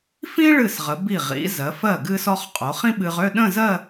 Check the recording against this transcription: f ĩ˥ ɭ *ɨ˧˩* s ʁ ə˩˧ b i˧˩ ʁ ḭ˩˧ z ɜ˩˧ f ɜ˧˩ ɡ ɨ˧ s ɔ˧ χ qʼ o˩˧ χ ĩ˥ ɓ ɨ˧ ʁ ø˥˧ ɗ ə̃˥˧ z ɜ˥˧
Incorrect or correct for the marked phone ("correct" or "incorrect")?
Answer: correct